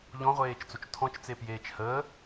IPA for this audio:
ʎ ɔ̃ ʁʷ eː t͡ʃ t͡s o t͡ʃ tʰ ɔ̃ t͡ʃ t͡s e p j eː t͡ʃ h əː

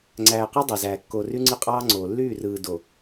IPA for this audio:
ŋ͡ǀ æː˨ q ɑ˦ dˤ ɑ˨ z æː˨ kː o˨ r y˦ ŋ͡ǀ ɯ˦ qʼ ɑː˦ ŋ͡ǀ oː˨ lː yː˦˨ r ɯː˨ d o˨

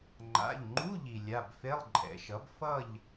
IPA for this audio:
ŋ͡ǃ a̰˩˧˩ ʎ ŋ͡ǃ u˧˥˧ ʎ i˩ lʲ a˩˧˩ b f e˧˥˧ lˠ ǃʼ ɛ̰˩˧ ʃ ʌ˩˥ b f ʌ˥˨ ʎ

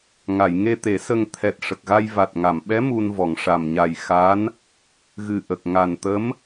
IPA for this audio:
ŋ a˨˩˨ j ŋ e˧ t̪ e˨˩˦ s ə˧ ŋ t̪ʰ ɛ˨˩ t̚ ʂ ə˨˩ k̚ ɣ a˧ j v a˨˩ t̚ ŋ a˨˩˨ m ɓ ɛ˧˥ m u˧ n v ɔ˨˩˨ ŋ ʂ a˨˩ m ɲ a˨˩ j x a˧˥ n | ɣ ɨ˨˩ ʔ ə˨˩ k̚ ŋ a˨˩ n t̪ ə˧˥ m

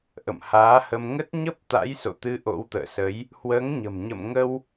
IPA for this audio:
ʔ ə̰˧˨ m h aː˨˦ h ə˧ m ŋ ə˦˥ t̚ ɲ ə˦˥ p̚ t̪ a̰˧˥ j s o̰˧˨ t̪ ɨ˨˦ ʔ o̰˧˥ w t̪ ə̰ː˧˨ s ə˨˦ j | h w əː˨˦ ŋ ɲ ə̤˨˩ m ɲ ə̰˧˨ m ŋ ə˧ w

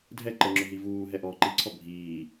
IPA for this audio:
dʱ ɛ ǃ ə ŋ͡ǁ ʊ ɦ i v uː ɦ ɛ ʔ ɔː ǃ i ǀʰ ɔ bʱ iː

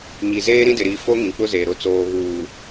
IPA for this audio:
ɲ i˨ z eː˦ ɾ ĩ˦ d ɪ˨ ɾ i˨ f o˦ ŋ ĩ˨ k͡p ʊ˦ z eː˨ ɾ ʊ˨ t͡s oː˨ ɣ uː˨

